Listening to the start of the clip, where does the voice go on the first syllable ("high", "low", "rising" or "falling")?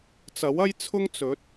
rising